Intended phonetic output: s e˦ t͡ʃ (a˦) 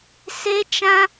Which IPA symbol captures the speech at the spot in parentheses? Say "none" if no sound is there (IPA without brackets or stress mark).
ã˦